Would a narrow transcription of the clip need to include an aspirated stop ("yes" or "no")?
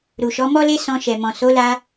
no